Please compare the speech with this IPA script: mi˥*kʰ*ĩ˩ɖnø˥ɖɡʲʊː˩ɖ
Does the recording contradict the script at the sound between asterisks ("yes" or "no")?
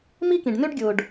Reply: yes